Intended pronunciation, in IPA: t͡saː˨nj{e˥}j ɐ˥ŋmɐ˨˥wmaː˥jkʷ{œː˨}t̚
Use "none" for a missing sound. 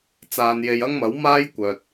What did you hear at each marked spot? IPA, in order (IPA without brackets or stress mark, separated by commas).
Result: e˨, œː˨